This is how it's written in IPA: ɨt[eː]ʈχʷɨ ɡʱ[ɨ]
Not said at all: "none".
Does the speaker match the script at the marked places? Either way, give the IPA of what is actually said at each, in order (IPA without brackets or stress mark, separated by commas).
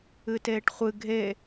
eː, e